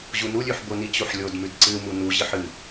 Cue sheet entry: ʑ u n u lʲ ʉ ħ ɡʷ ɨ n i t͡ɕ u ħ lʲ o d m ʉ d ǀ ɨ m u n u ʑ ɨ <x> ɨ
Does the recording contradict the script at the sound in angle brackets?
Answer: yes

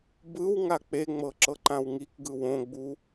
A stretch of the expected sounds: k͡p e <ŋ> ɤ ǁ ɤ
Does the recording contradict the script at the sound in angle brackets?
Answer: yes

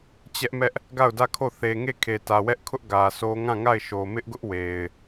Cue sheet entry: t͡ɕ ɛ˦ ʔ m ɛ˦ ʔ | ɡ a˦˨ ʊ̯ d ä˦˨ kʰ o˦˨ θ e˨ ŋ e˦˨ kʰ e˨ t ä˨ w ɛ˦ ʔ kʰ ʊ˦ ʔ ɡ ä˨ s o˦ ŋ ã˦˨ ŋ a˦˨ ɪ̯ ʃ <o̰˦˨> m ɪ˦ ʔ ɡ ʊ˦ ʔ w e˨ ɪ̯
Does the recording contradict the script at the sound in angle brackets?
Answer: yes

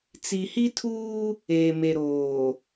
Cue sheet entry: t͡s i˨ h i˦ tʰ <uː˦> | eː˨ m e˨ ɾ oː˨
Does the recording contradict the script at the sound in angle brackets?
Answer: no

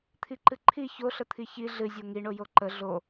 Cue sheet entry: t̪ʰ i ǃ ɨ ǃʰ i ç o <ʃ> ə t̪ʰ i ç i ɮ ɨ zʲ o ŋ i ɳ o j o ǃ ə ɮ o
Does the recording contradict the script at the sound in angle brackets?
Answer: yes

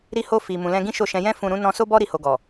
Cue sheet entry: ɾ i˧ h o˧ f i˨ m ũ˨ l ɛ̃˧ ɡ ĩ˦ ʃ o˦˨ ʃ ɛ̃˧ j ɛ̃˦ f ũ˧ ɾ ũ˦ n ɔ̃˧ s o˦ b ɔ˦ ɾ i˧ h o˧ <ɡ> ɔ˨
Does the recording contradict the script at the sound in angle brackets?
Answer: no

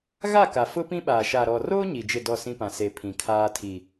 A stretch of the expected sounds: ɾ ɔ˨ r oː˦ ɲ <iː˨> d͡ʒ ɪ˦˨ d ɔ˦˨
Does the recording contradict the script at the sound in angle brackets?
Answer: yes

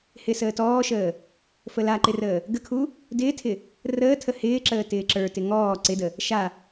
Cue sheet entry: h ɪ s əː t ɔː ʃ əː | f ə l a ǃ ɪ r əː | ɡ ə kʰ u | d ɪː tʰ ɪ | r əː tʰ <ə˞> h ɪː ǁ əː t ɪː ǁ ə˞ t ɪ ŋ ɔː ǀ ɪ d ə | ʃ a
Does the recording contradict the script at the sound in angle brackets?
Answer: yes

